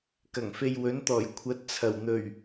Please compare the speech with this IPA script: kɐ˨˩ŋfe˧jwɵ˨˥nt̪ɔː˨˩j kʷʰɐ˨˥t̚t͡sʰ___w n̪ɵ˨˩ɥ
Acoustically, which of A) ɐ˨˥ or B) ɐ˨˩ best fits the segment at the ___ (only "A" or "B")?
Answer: B